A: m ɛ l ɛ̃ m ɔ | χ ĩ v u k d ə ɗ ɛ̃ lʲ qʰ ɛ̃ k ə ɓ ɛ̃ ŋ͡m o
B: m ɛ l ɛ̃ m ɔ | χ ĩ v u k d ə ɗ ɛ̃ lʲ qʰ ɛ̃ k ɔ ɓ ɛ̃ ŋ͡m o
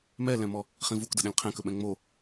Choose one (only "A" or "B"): A